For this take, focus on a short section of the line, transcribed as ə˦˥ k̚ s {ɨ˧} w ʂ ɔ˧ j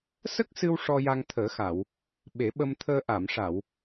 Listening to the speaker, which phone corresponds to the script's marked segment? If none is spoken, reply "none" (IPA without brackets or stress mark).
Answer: ɨ˧